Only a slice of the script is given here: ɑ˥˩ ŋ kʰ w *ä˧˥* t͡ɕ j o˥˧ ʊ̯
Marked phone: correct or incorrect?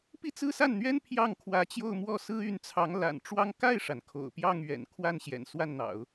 correct